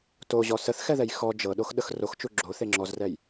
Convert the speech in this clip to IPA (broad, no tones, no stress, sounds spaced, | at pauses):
t o ʑ ɔ s ə θ x ɛ ð ɛ j x ɔ d͡ʒ ɤ ɗ o x ɗ ə x r o x t͡ʃ u ɡ͡ǁ o θ e ŋ͡ǁ ɔ z r ɛ j